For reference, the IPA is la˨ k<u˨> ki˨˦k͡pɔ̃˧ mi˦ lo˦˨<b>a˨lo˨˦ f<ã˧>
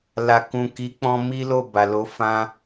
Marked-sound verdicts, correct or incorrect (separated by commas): incorrect, correct, correct